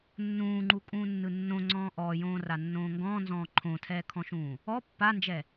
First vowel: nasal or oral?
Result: nasal